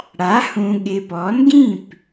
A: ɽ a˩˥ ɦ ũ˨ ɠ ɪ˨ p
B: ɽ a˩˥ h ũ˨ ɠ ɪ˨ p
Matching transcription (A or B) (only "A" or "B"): B